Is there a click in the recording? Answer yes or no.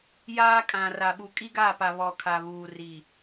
no